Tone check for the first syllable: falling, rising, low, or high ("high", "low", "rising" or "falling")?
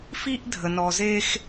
high